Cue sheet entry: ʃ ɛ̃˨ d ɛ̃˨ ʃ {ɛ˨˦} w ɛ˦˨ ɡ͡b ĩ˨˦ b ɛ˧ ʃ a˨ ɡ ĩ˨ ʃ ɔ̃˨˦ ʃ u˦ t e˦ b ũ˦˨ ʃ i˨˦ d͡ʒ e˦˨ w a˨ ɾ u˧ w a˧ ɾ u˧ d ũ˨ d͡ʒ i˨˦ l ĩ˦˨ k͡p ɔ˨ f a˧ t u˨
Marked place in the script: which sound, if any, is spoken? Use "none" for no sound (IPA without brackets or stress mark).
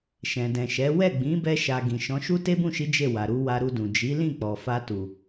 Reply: ɛ˨˦